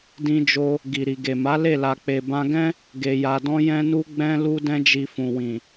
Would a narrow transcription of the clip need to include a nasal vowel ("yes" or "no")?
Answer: yes